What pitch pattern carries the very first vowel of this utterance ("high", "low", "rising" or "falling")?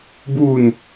falling